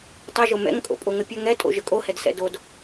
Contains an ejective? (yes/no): yes